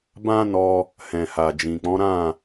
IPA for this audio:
bã˦nɔ˧ | hɛ̃˨ ha˨d͡ʒĩ˨k͡pɔ̃˨˦ ɾã˦˨

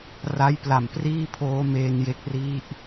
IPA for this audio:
ra˦˥j pla˨˩mpriː˥˩pʰoː˦˥ meː˧nje˦˥k̚ ri˦˥ʔ

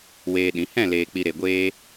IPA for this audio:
weː˧ɗĩ˨˦ hɛ̃˦˨leː˨k͡pi˨ ɾe˨ɡʷeː˧

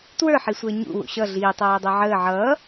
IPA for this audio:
twə˞ħisʷəː ɲṵ wṵɕʌ ɮiːtˤæːdˤæ ʕəː ʕʌː

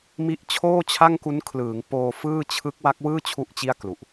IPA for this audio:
mi˦˥ʔt͡ɕʰoː˥˩t͡ɕʰa˥˩ŋku˦˥n kʰlɯː˩˦ŋpoː˧ fɯː˥˩ t͡ɕʰɯ˦˥k̚ wa˦˥k̚wɯː˥˩ t͡ɕʰu˥˩ʔt͡ɕi˥˩a̯klu˨˩ʔ

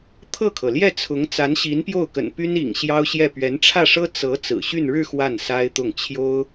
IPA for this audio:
t̪ʰɤ˥˩kʰɤ˩ljɛ˥˩t͡sʰʊ˧˥ŋ t͡sa˧˥nɕi˧˥npjo˥˩ʊ̯kə̰˨˩n py˥nḭ˨˩ŋ ɕjɑ˥ʊ̯ɕjɛ˥˩ pɥɛ˧˥nʈ͡ʂʰä˥˩ʂɤ˥ t͡sɤ˧˥ t͡sɹ̩˨˩ɕy˥˧n ɻɻ̩˥˧ xwa˥˩nsa˥ɪ̯t̪ʊ˥˩ŋ t͡ɕʰjo˥ʊ̯

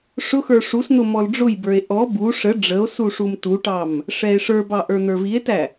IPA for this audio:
ʂʊxə˞ ʂusn̪ʊ mɔlɖ͡ʐʊjbə˞e̯ ʔɔ bu ʂə ɖ͡ʐəo̯ suʂumtuʈɑm | ʂɛe̯ʂə˞bɑ ʔə˞n̪ə˞vie̯tæ

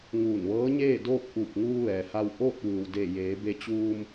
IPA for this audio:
ŋuː˧˩nʋɤː˧˥ɲeː˥˨doː˥˨k̚ ʔuː˧˩p̚ŋuː˧ ʋɛː˩ha˧w ʔoː˥˨t̚ʋɯː˩wdeː˧˩jeː˩˧ be˧ t͡ɕuː˧m

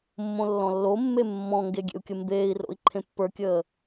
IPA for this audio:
mːõlːɔ̃lːomːe mːɔ̃ŋɡe ɡʲḛu̯kʲəmbeːi̯ro̰i̯ ǃʰẽpːə˞kʲəː

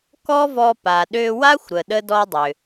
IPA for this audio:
kɔ˥ vɔ˧pa˩ ɗø˧wa˥xʷɾə˩ ɗə˥dɔ˥dˤʏ˩

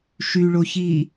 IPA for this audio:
ʃyɭoçiː

